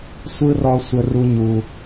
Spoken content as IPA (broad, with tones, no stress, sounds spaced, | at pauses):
sʷ ɯ˦ r ɔ˦ sʷ ə˧ r u˧ ɲ u˨